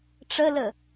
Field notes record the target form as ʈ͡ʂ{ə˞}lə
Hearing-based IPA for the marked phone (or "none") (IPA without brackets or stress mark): ə